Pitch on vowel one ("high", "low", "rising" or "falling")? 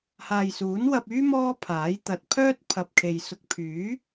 low